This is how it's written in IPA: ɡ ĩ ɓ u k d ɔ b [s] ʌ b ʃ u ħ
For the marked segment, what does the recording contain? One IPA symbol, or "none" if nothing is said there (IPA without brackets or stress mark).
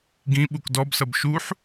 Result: s